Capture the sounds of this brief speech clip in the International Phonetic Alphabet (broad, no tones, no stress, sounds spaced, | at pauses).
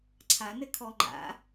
ǀʰ a n ɘ kʰ ɔ ŋ͡ǃ a̰